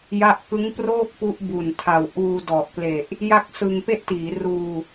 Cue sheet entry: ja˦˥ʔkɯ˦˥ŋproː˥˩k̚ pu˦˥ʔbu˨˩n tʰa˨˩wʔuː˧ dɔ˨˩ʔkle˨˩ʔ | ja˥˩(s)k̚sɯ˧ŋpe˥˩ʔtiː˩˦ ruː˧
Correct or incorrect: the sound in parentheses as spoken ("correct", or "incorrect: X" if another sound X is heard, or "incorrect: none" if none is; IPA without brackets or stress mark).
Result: incorrect: none